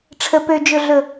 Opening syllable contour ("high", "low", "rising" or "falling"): low